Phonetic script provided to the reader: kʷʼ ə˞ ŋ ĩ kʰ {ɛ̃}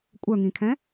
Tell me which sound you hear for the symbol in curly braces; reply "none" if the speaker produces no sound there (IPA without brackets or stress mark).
ɛ̃